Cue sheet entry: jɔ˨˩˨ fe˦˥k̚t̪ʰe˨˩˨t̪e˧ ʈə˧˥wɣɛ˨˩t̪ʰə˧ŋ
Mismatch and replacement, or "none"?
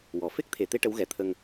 j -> w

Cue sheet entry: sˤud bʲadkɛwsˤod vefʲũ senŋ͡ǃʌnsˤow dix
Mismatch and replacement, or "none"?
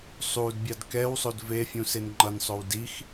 none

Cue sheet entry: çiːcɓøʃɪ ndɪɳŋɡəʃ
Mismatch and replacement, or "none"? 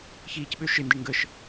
none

